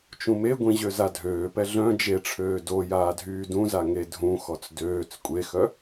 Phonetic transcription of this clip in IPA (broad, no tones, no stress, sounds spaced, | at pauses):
t͡ʃ ũ m e ɡʷ ĩ ʑ ø z a dʱ øː p ɛ ɮ œ̃ d͡ʒ e ʈ͡ʂʰ øː d o j aː dʱ yː d ũ z a ŋ e dʱ ũ x ɔ t͡s d øː t͡s kʷʼ e x œ